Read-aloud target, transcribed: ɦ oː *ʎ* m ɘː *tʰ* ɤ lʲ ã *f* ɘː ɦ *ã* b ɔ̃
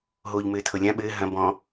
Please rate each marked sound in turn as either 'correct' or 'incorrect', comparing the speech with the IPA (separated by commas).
correct, correct, incorrect, incorrect